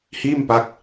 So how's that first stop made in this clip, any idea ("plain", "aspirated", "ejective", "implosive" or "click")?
plain